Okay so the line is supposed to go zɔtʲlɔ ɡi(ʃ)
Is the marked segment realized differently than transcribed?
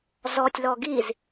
yes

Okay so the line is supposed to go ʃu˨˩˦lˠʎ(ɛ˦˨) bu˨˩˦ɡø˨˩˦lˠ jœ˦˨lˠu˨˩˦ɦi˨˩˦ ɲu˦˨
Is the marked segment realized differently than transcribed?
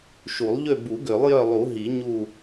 yes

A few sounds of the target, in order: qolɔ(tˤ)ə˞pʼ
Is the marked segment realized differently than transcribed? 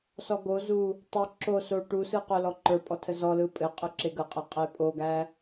yes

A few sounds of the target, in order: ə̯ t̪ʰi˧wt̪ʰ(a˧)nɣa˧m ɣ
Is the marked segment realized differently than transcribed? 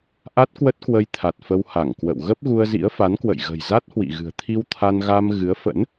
no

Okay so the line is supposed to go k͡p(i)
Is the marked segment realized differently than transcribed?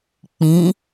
yes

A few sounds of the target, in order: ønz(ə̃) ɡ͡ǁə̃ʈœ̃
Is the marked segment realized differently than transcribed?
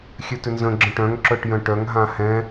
no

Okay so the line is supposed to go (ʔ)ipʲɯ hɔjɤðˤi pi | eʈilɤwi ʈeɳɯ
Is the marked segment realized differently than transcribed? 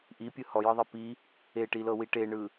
no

